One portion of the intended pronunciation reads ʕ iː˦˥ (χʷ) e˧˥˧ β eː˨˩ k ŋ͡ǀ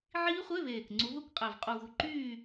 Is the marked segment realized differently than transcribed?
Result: no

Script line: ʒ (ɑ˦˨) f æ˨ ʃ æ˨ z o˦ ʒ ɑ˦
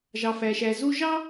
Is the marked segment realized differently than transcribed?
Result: yes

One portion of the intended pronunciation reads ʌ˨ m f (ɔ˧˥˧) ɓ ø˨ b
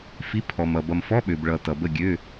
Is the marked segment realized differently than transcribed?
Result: no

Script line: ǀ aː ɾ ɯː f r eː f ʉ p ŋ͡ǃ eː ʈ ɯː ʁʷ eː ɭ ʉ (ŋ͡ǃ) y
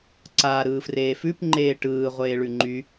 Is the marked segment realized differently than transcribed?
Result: no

